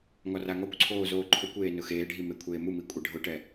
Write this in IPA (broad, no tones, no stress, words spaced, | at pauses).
ŋɔraŋɔkʷǀʰoː zoːǃʰokʷeː nʊxeːɖʱi mekʷʰeːmumi kʷʼeɖʱʊʈɛ